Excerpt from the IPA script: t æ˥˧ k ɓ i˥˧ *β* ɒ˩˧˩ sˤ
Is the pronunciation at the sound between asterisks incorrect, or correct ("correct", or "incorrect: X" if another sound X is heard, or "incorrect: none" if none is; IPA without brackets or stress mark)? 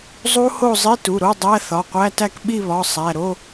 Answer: correct